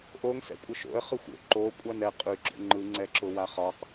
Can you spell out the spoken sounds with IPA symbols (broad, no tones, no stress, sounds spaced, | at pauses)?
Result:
ʔ o ŋ s ɛ̰ kʷʼ ə ʃ o̰ ə̯ χ ɯ xʷ o̰ ǃ o kʷʼ a n ɛ qʼ y ɡ͡ǁ o̰ ŋ͡ǃ ɯ ŋ͡ǀ ɛ ǁ ʊ w a χ ɒ q